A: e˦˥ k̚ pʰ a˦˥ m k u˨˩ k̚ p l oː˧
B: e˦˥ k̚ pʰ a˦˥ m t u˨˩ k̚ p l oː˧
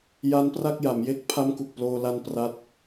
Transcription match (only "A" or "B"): A